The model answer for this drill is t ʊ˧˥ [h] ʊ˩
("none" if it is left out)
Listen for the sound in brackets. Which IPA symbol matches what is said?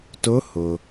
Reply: h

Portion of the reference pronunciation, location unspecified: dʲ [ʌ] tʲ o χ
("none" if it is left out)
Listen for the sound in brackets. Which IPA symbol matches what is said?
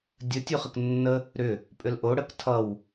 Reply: ə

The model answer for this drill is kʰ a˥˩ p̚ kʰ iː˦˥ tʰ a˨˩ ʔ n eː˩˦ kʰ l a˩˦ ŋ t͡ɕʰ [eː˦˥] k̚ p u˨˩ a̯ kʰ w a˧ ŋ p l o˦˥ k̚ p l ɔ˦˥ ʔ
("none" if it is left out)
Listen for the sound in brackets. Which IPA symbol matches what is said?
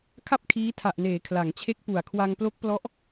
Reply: e˦˥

